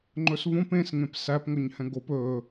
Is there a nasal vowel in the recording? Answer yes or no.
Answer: yes